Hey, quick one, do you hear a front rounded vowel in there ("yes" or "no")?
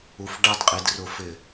no